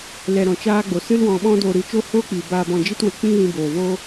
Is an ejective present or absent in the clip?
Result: absent